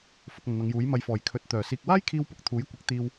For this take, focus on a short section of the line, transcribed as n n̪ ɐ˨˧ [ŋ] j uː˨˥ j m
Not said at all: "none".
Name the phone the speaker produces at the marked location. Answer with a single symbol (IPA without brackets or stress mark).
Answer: ŋ